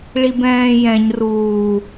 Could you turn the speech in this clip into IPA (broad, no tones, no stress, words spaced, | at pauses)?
ɭibɛ̃ːjɛ̃ɲ ruː